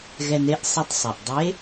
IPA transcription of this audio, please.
ɣɛ˧n e˥ʔ sˤi˧tˤsˤɛ˩ʔ dˤe˧˥

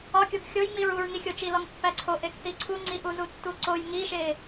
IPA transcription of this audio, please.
ɒkʲoɡ xʲojŋ͡miɹ uɹŋixʲot͡ʃi lɒŋpːæǀʰo ʔekθiǀʰuŋ͡ǀi ʔuzutːuǀoj ŋiʃe

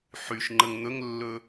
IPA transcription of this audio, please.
ħyʃŋ͡ǃəŋ n̪ɵŋlːɵ

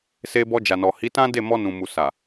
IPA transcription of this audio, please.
se˧bɔ˧d͡ʒa˨nɔ˨ hi˨˦tã˦ de˦˨mɔ˧nũ˨mu˨ sa˨

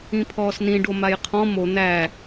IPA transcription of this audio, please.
ĩpʰɔːsnĩɖo majqʰɔ̃ mo n̪æ

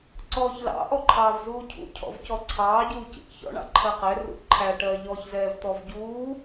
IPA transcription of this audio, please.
ǀɔːçlɑ̰ ʔɔǃʰɑːvzuːcʰṵ cʰɔ̰vcɔǀʰɑː ɟuːcḭʔçɔ̰ ɳɑ̰ǃʰɜqɛ rṵǃʰæ ʈɜʎɔç zɛːvt̪ɔvɟuː

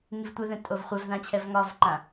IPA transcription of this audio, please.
ŋivtʷɛðɛ̃ tʼovχʷɛvðã t͡ɕʰɛvŋɒvǃã

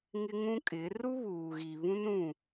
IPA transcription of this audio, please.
ŋɪ˦ŋũ˦kʼɪ˨˦ ru˦βuː˨ɣi˨ βũ˦n ũ˦˨

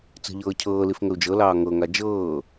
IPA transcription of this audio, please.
t͡sə̤ʎɤː cʰɤː lifŋəu̯d͡ʒɤlɑː ŋɤŋa d͡ʒɤː

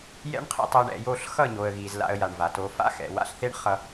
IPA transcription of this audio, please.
jɛ̰˦ɳqʰḭ˧ tˤo˧ɳ ɛ̰˨jo˦˨ɬ xʌ˦˨ɲo˨ə̯ɣi˨z la̰˧ə̯ja˨ɳva˨to˧ fa̰˦ xɛ̰˨ wa̰˦ɬθe˦ɳχʌ˧

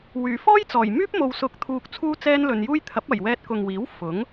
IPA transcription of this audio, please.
wyː˨˩fɔː˥jt͡sɔː˨˩jmyː˥p̚ mo˨wsʊ˨˥k̚t̪ʰuː˨k̚ t͡sʰuː˥t͡sɛː˥nlɵ˧njuː˥j t̪ʰɐ˨˥p̚ɐ˨˩jwɛː˧t̚ kʊ˨ŋwiː˨˥w fʊ˨˥ŋ

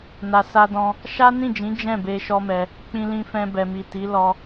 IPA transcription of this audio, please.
na˨sa˧dɔ̃˧ | ʃa˦nĩ˦˨d͡ʒĩ˨˦ d͡ʒɛ̃˦˨be˧ ʃɔ˦mɛ˧ | k͡pĩ˧lĩ˧fɛ̃˧ bɛ˨mi˨ti˨˦ lɔ˧

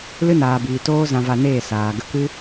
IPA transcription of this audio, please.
lɨ˦naː˨biː˨ toː˦ zã˧va˧neː˦˨ saː˨ ɡə˧kɨ˦

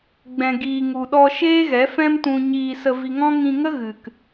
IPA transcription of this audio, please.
ɡ͡bɛ̃˨ɡiː˨ŋu˨ɗɔ˧ ʃeː˦ɣɛ˨˦fɛ̃˦mtũ˧ ɲiː˧ sə˧vi˧ŋɔ̃˦ ŋĩ˧ŋə˦ ɣɨ˨k

